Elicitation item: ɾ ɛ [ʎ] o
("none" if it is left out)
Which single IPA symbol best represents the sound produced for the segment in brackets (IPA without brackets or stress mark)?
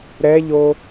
ʎ